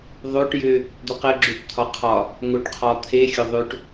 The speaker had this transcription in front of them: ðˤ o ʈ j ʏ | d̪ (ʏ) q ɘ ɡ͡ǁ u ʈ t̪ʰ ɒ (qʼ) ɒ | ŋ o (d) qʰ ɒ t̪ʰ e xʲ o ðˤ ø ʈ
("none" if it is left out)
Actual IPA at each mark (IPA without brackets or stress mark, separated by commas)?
ʏ, qʰ, ʈ